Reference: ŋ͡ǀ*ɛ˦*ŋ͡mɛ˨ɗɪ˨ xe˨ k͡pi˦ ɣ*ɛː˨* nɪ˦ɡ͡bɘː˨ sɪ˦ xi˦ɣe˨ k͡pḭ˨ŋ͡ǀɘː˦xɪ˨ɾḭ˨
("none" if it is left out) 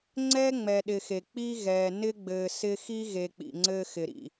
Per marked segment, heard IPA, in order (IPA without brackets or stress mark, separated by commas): ɛ˦, ɛː˨